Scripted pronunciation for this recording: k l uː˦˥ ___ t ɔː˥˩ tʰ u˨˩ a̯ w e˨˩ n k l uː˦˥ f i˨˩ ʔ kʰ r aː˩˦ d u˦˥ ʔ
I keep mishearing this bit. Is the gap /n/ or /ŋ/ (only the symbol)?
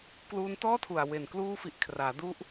n